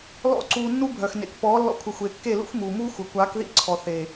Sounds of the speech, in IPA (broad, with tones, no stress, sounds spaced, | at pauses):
l ɔ̰˦˨ ǀ uː˧ nː u˦ bʱ œ˨ x n ḛ˨ k p ɔː˨˦ lː ɔ̰˧ kʷʰ ə˨ xʷ e˨ kː e˦˨ l ṵ˦ x m uː˨ m uː˦ xʷ ə˨ kʷ aː˨˦ k ð ḭ˦ ǀʰ ɔ˨ θ e˨